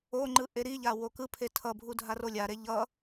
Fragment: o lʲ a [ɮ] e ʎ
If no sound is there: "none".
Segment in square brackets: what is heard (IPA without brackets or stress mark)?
ɾ